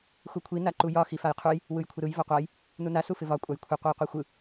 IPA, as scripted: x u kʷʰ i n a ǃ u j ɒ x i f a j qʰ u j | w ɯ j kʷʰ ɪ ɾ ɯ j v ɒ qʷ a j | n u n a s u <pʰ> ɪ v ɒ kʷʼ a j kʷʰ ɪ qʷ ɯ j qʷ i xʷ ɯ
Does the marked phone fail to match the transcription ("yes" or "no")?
yes